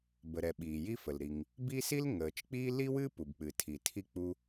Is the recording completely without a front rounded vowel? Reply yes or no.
yes